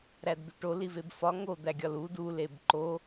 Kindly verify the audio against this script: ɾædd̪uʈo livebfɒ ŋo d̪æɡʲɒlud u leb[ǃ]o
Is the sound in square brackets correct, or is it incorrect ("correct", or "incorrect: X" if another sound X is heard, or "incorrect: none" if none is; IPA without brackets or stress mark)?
correct